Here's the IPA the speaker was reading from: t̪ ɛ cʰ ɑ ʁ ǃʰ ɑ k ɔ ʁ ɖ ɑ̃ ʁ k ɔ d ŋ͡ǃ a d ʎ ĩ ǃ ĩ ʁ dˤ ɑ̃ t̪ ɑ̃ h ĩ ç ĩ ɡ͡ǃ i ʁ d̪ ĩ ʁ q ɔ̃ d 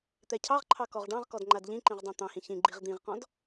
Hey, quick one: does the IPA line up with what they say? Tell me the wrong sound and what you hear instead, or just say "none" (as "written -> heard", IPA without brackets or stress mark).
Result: none